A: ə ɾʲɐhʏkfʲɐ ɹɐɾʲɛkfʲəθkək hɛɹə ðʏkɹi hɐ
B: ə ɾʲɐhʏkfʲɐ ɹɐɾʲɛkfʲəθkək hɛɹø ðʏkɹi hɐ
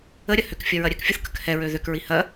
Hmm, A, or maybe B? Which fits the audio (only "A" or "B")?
B